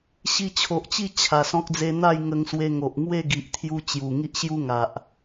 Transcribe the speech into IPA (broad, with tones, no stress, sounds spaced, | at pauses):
ɕ i˧ t͡ɕʰ o˨ ʔ t͡ɕ i˥˧ t͡ɕʰ a˨˩ s ɔ̃˦ k̚ d͡z e˧ n̪ a˥˧ j ŋ ə˧ ŋ s w e˧ ŋ o˨ ʔ ŋ w e˥˧ ɡ i˨ ʔ t̪ʰ j u˧ t͡ɕ j u˨˩ ŋ i˦ ʔ ɕ j u˦ ŋ a˨ ʔ